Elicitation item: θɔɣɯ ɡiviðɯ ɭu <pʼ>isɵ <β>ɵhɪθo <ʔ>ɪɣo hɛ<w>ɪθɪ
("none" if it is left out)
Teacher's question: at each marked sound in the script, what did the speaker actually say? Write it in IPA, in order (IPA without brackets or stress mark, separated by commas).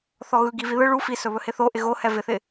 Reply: f, β, ʔ, v